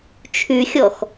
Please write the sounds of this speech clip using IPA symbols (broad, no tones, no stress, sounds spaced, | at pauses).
t͡ʃʰ y xʲ ɔ x